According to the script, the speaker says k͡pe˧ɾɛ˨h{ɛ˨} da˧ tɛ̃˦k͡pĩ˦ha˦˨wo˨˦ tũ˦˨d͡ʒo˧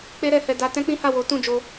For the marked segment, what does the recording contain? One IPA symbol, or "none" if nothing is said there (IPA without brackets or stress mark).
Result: ɛ˨